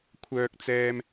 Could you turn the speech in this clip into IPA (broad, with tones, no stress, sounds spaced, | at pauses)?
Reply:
kʷʰ œː˥ k̚ t͡s ɛː˥ m